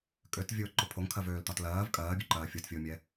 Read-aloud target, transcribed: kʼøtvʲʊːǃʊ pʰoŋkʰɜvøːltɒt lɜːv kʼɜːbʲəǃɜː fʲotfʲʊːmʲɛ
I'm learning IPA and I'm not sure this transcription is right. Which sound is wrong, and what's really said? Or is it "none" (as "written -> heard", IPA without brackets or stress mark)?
none